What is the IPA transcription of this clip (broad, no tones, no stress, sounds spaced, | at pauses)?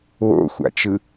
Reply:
w o̰ xʷ a̰ t͡ʃ ɯ